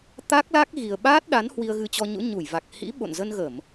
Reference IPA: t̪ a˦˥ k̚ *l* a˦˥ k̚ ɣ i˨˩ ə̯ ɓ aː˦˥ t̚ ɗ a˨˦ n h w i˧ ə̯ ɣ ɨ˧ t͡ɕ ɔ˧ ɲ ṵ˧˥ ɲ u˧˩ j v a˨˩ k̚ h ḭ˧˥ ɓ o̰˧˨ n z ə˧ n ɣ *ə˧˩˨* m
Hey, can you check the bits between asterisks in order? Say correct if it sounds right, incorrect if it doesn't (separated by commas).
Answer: correct, correct